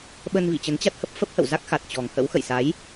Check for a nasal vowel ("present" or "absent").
absent